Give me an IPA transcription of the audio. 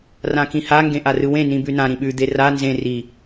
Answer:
r ã k ĩ h a ŋ ɡ ẽ ʔ a r ɯ w ẽ n ĩ b ʉ n ã ɾ ĩ ɓ ʉ d̪ e r a n z ẽ r i

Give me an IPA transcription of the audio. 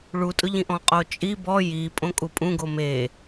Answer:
ɭ u tʼ ʊ ʎ ĩ ʔ ɔ̃ qʼ o t͡ʃʼ i b ɔ j i pʼ õ kʼ u pʼ ũ ɡ o m e

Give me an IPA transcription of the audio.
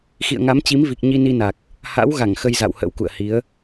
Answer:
x ḭ˧˨ ə̯ ŋ a˨˦ m t͡ɕ i˨˦ m v i˨˩ k̚ ɲ i˧ n i˧ n a˨˩ k̚ | h a̰˧˥ w ɣ a˧˩ ŋ x ə˧ j z a̰˧˨ w h ə̰˧˥ w k ṵ˧˨ ə̯ h i˨˦ ə̯

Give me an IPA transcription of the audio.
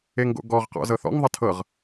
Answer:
e ŋ ɡ o̰ ɡ ɔ ʁ q ɔ̰ z ɤ θ ɔ̰ ŋ ðˤ ə tʰ ɤ ʁ

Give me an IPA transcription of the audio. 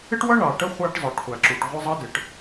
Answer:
ɪ˥ ʈ w ʌ˥ ɳ ɑ˩ ʈ ə˥ χʷ æ˥ ʈ zˤ ə˞˩ ʈ χʷ æ˩ ǁ u˩ ʈ ʁʷ ɪ˥ zˤ ʌ˥ d ɪ˩ ʈ

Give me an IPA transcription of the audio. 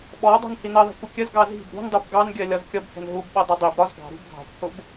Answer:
ɓ ɔ dˤ ṳ n h i n ɜ ðˤ i̤ kʷ ə kʲ ə z ɡ ɑ z i̤ b ɾ ṳ n dˤ u b ɡ ɑ n ɡʲ ɜ lʲ ɒ z kʲ ʌ b h ɛ̤ n ɦ u b ɓ ʌ dˤ ʌ dˤ i b ɾ ɒ z ɡ ɑ̤ ɾ ṳ b ɡʱ ɑ̤ kʷ h ʊ b

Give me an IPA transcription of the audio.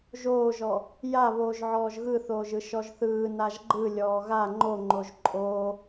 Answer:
ʒ oː ʒ ɔ | j a β oː ʒ ʕ ɔː ʒ ɣ ɯ θ oː ʒ ɯ ʃ ɔ ʒ θ ɯː n a ʒ ɡ͡ǃ ɯ lʲ ɔː ɣ a ŋ͡ǃ o ŋ͡ǃ o ʒ ǃʼ oː

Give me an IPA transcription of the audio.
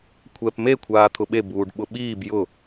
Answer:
kʷʰ ɛ p m e kʷʰ aː t̪ʰ ʊ ɓ e b uː ɖ ɓ ʊ ɓ iː b j ʊ

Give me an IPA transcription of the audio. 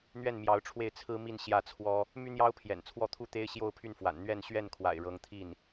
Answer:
n̪ ɥ ɛ˥˩ n m j ɑ˧˥ ʊ̯ ʈ͡ʂʰ w e˥˩ ɪ̯ t͡sʰ ɹ̩˥ m i˥˧ n ɕ j ä˥˩ t͡sʰ w ɔ˥ | m y˥ n̪ j ɑ˥ ʊ̯ pʰ j ɛ̰˨˩ n t͡sʰ w ɔ˥˩ t̪ʰ u˥ t̪ e˥ ɪ̯ ɕ j o˥˧ ʊ̯ pʰ y˥˩ n f w a̰˨˩ n n̪ ɥ ɛ˥˧ n ɕ ɥ ɛ˥˩ n kʰ w a̰˨˩ ɪ̯ ɻ ɤ˧˥ ŋ t̪ʰ i˥˩ n

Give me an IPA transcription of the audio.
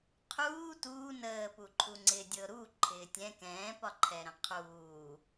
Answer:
qʰ uː t uː n əː p u ǃʰ u ŋ͡ǀ ɪː dʲ ɤ ɾ u ǃʰ ɪː tʲ ɛ̃ k ɛ̃ː p ɒ ǃʰ ɛ ɾ ə̃ qʰ uː

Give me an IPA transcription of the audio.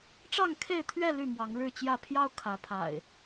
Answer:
ʈ͡ʂ ɑ˥˨ ŋ kʰ e˥˨ ɪ̯ t̪ʰ ɥ ɛ˥˨ l y˥˨ m w ɑ˨˦ ŋ ɻ ɻ̩˥˨ t͡ɕ j ä˥˨ pʰ j ɑ˦ ʊ̯ kʰ ä˨˦ pʰ a̰˨˩ ɪ̯

